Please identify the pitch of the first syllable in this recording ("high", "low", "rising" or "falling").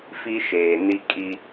high